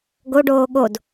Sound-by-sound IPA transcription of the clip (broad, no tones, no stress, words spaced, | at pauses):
ɡoɖoː ɠod